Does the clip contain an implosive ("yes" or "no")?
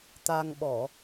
yes